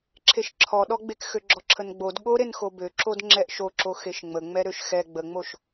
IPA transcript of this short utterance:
ǁʰ e ʃ ǁʰ ɔ ɗ ɔ ɡ͡b e k x ø ɡ͡ǁ ɔ ǁʰ ə n ɡ͡b o d ɠ o ɾ e n x o b ø ǁ o d ŋ͡ǁ ɛ ʔ ʃ o ǁ o x e ʃ ŋ͡m ə ŋ͡m ɛ ɾ ø ʃ x ɛ ɡ͡b ə ŋ͡m o ʃ

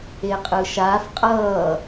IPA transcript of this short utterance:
e qʼ ɯ ʃ a f qʼ ʌ

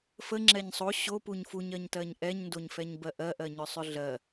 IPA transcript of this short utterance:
f ə ŋ͡ǁ ɛ ɲ sˤ o ɕ o p u ɲ f u ɲ ɜ ɲ t ɜ ɲ ʔ ɛ ɲ n d o ɲ f ɛ ɲ b ɜ ʔ ɜ ʔ ɜ ɲ ʏ sˤ ʏ ɮ ɜ

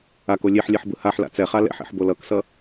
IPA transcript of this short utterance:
a k o lʲ e ħ lʲ ɛ ħ b ɯ h a ħ l a̰ t͡s ɛ χ a l ɛ̰ ħ ḛ ħ b o l ʌ k s ʌ

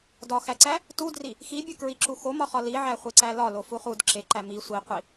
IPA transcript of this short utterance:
d ɒ x æ ǀ æ | t u d r i | x i bʲ u k ɹ i ǁ u x o m ɒ χ ɒ l i ʕ æ χʷ e ǀ æ l ɒ l o f u χ u d ǁ e ǃ æ m i sʷ i qʷ i

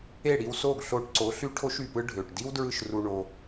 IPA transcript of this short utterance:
e˦˨ ɽ i˧ w s oː˦˨ ɡ ɬ oː˧ ʈ ǀ o˨˦ ɬ y˦ ʈʰ o˦ ʃ y˨ p ɯ˦ ɖʱ øː˨ ʈ d i˦ w d ɹ ɯ˦˨ ʃ r u˧ ɳ o˧

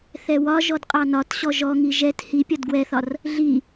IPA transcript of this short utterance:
θ ɛ w ɒ ʒ ɔ d qʼ ɑ n ɒ t ɕ ɔ ʒ ɔ ŋ i ʒ ɛ t h i pʲ ɒ d ɡ w ɛ θ ɒ r | ɮ i

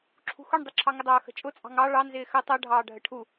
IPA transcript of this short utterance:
ǁʰ ṳ x ʊ ɳ dˤ ɪ ǁʰ ɑ ŋ ə dˤ ʌː x ə̤ t͡ʃʼ ʊ t͡sʼ ɑ̤ ŋ ɑ ɭ ɑ n z ɪː x ə tˤ ʌ ɖʱ ɑː ɖʱ ə ʈʰ u

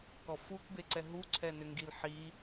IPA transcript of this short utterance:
k ɔ f u k b e ǀ ɛ ɦ u ǀʰ ɛ n ʏ ŋ ɡ i l ħ i

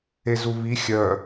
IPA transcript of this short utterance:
e z u β i xʲ œ

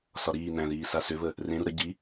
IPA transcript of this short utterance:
s ɒ ɾ iː n æ̃ ð iː s a s ʏ v ə | r ẽ ɾ u ɾ ə ɟ i

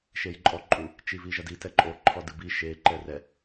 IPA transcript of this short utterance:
ʃ e j ǃʼ ɔ ǃʼ u | t͡ʃ i v i ʒ ɐ d i t ɛ ǃʼ o ǃʰ ɔ d ɨ b i ʃ e ǃ ɛ r ɛ

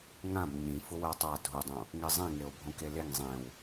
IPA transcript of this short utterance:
ŋ ã b ɲ ĩ f ʊ w ɜ tˤ a dʱ u dˤ õ | ŋ e zˤ ĩ ŋ e o̯ bʱ õ k e l e ŋ zˤ ẽ w

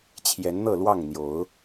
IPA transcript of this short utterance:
t͡ɕʰ j ɛ˨˦ n n̪ ɤ˥˨ l w ɑ˥˨ ŋ n̪ j o˨˦ ʊ̯

